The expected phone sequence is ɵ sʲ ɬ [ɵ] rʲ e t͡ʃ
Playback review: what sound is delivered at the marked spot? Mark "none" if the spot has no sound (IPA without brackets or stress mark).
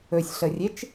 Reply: ə